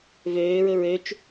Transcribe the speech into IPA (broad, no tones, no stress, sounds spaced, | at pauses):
v øː ɹ ɵ ɹ ø t͡ʃ